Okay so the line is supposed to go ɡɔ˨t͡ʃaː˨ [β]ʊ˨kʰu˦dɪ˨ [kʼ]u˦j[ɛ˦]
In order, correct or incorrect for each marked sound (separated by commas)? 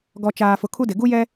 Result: incorrect, incorrect, correct